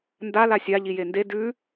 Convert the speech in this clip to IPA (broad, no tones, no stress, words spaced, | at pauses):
nda lasʲa ʎijende dʉ